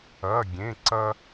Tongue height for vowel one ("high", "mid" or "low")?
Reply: low